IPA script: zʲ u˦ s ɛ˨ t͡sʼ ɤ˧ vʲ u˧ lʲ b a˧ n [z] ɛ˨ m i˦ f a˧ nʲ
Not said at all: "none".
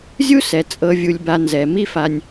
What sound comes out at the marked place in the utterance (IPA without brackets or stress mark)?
z